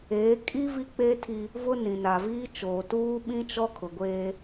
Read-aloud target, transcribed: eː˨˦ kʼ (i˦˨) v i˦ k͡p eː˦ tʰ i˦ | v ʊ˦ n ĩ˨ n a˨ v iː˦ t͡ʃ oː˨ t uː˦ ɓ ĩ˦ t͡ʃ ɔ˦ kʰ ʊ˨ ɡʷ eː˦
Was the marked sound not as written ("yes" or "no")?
yes